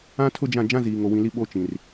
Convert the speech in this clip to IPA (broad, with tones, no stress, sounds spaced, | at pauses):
ã˦ tʰ ʊ˦ d͡ʒ ã˦˨ d͡ʒ ã˦ z iː˨ ŋ o˨ w ĩ˨ l i˦ ɓ o˦ t͡ʃ ĩ˨ r